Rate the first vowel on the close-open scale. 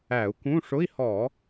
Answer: open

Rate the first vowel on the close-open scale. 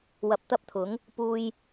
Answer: open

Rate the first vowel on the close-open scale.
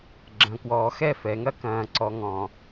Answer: open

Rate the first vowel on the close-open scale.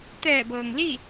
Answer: mid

